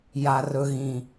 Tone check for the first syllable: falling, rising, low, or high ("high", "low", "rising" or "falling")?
low